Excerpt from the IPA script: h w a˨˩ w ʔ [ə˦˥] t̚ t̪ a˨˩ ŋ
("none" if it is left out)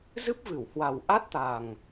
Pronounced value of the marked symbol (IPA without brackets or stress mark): a˦˥